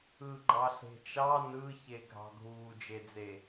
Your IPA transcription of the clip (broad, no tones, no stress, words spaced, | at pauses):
ɯɡ͡ǃɑ ɬe̤t͡ʃɑ nɯçe ɡʱɑ̤ɡʱuːd͡ʒed͡ze